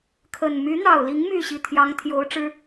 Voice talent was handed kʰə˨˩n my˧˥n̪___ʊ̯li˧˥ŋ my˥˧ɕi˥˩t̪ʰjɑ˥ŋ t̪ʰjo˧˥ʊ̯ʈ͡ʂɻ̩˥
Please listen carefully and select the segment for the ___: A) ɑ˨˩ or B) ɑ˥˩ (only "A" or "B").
A